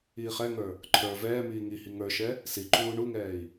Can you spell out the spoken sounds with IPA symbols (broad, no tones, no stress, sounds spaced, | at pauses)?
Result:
iː χ ɛ ŋ ə˞ | ǃʰ ə˞ v ɛː m iː ŋ i h i ŋ ə˞ ʃ ɛ | s i ǃ uː ɳ u ŋ ɛː i̯